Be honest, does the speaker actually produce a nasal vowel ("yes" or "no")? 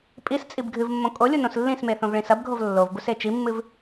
yes